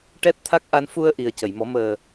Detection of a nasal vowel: absent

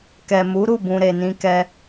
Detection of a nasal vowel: present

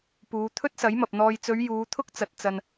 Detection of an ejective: absent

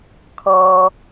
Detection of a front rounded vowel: absent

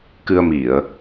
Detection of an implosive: absent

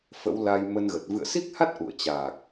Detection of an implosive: absent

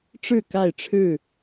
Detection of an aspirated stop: present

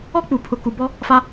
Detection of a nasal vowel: absent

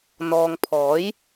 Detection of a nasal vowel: absent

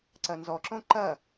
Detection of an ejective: absent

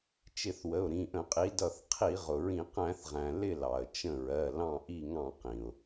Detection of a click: absent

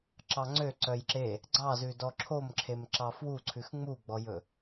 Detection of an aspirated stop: present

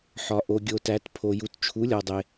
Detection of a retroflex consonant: absent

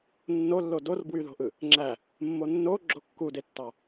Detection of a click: present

